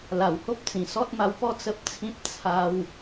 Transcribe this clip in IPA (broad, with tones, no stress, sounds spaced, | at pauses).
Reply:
l a˨˩ w h o˦ p̚ t͡s ĩ˨˩ s ɔ˦ t̚ m a˧ w p ɔ˥˧ t͡s ə˦ p̚ t͡sʰ ĩ˦ p̚ t͡sʰ a˦ w